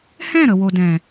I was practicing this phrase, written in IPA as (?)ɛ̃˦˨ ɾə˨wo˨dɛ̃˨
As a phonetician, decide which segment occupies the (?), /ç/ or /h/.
h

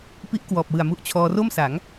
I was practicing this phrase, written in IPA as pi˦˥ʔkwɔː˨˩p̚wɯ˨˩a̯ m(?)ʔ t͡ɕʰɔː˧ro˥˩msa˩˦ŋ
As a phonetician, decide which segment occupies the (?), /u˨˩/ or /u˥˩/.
u˥˩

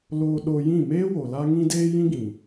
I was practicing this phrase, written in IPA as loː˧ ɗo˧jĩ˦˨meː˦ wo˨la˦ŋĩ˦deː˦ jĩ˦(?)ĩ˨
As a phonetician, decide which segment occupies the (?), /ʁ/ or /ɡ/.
ɡ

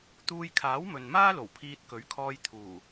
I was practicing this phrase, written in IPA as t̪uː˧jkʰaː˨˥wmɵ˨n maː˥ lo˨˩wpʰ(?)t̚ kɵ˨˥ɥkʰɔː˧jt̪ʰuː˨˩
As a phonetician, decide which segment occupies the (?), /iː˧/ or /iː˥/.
iː˧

